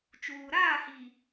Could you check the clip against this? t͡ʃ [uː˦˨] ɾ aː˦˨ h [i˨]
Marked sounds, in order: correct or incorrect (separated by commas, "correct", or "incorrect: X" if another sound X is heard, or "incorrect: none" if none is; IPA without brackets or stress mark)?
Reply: incorrect: uː˨, correct